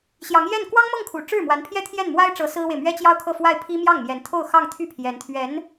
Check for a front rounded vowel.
present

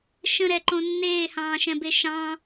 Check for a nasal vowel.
present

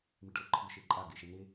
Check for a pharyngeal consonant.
absent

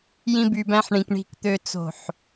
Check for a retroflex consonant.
present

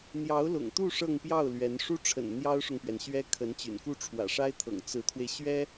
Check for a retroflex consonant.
present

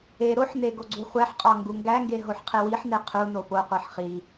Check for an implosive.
absent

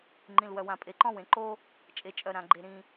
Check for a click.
present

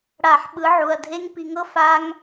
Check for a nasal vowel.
absent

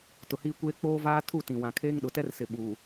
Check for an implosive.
present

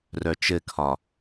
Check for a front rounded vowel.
present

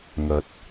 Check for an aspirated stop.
absent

